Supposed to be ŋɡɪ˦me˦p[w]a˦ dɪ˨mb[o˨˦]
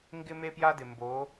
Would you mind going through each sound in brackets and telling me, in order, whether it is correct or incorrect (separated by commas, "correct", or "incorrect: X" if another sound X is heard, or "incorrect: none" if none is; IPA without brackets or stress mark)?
incorrect: j, correct